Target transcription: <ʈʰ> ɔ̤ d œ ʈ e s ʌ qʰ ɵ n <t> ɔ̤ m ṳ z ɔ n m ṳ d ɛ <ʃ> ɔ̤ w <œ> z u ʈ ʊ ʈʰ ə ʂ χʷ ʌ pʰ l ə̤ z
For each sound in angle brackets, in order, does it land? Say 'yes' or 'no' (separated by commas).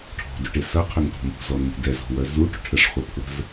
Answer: yes, yes, no, yes